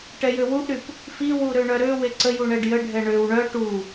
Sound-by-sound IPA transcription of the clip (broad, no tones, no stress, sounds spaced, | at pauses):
ʈ ɛ j ø w u ʔ ɾ y p | f i w u ɾ ø ɳ œ ɾ ø w e ǀ ə j u ɳ ɛ ɖ j ə ɖʱ ɛ ɳ ø w ɳ œ ʈ u